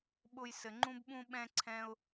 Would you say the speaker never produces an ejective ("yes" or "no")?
yes